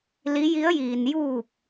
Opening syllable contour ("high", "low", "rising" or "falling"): rising